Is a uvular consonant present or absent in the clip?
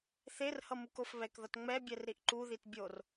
absent